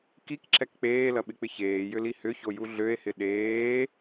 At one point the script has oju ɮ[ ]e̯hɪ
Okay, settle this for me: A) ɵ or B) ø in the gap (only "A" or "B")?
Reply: B